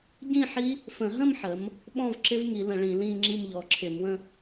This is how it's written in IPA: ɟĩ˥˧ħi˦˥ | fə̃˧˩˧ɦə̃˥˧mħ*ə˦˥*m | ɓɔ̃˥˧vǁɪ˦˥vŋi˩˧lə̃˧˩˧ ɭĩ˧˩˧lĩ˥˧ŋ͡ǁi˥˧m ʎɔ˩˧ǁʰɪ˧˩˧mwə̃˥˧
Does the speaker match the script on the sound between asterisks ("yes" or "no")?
no